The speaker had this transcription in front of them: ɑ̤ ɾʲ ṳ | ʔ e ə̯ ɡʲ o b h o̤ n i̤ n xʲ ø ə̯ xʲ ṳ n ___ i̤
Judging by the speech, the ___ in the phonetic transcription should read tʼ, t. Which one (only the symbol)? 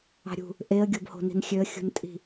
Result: tʼ